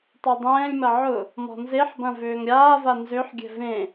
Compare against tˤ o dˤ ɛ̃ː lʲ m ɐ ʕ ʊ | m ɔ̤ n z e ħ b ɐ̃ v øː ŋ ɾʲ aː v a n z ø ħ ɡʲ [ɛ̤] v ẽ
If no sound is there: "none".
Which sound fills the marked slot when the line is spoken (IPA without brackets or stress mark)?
ɛ̤